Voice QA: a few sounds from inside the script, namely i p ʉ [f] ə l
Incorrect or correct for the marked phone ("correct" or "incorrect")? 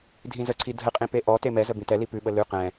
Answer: incorrect